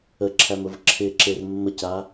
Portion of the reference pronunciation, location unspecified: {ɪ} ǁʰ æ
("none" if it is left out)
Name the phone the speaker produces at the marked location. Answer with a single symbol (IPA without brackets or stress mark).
ə